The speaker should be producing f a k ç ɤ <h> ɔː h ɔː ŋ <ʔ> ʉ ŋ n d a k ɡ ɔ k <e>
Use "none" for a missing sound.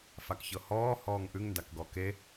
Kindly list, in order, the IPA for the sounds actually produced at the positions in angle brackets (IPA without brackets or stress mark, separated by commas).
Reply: h, ʔ, e